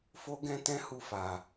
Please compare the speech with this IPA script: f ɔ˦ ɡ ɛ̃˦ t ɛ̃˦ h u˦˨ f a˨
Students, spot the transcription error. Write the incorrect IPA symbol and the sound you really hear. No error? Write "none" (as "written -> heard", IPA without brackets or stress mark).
ɔ˦ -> o˦